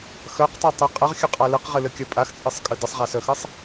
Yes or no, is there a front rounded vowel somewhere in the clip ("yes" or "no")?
yes